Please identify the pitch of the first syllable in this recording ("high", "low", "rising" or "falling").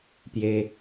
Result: low